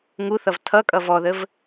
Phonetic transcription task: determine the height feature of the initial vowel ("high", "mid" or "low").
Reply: high